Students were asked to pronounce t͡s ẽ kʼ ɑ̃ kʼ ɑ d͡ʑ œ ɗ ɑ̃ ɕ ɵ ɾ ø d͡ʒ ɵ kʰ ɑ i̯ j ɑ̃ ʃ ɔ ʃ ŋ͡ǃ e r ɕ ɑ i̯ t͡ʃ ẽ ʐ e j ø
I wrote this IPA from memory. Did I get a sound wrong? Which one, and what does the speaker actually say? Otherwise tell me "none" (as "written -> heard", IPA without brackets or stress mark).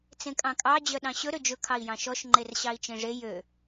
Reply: none